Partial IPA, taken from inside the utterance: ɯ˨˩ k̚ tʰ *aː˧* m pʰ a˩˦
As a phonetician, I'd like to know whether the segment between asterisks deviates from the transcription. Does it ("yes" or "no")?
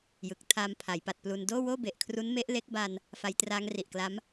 no